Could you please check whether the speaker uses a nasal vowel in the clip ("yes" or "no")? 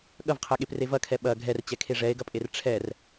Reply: no